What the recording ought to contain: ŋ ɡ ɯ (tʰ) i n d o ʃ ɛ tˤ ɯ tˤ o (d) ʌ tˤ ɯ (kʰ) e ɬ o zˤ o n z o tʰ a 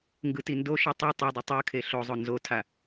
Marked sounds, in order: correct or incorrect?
incorrect, incorrect, correct

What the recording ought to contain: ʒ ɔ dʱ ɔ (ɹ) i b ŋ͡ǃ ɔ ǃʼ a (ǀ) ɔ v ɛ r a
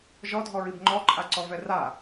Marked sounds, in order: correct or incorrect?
correct, correct

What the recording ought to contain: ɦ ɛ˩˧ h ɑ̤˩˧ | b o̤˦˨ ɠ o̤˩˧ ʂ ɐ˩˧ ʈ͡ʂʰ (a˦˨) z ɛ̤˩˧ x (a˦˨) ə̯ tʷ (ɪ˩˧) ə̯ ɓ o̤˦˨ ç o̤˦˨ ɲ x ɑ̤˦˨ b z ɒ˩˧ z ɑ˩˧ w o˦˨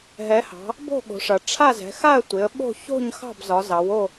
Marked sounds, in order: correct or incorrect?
correct, correct, correct

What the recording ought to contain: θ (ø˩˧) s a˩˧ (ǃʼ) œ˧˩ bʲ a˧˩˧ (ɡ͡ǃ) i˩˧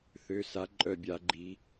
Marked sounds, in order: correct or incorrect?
correct, correct, correct

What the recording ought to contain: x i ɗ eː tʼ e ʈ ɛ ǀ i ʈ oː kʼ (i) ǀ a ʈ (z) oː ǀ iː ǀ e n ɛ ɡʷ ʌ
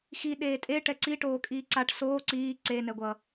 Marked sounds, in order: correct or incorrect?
incorrect, incorrect

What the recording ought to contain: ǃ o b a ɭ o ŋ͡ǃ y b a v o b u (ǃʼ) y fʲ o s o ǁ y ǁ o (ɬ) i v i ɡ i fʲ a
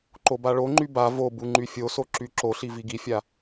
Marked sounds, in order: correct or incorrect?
incorrect, correct

